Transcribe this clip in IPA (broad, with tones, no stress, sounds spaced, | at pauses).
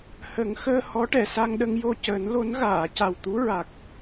h ə˨˩˦ ŋ x əː˧ h ɔ˧˥ ʈ ɛ˨˩˨ s a˧ ŋ ɗ ə˧ ŋ j o˧ c əː˨˩˦ n l o˧˥ n ɣ aː˨˩˨ c a˨˩ w t̪ u˧˥ ɹ a˨˩ k̚